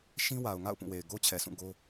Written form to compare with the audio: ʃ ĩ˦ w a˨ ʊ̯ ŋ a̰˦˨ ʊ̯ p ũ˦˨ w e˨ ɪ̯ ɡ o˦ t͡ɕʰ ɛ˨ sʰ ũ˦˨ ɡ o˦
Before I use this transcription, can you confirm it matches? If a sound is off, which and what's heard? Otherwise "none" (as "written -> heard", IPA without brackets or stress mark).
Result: none